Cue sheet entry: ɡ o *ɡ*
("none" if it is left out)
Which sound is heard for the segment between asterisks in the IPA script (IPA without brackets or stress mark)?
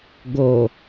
none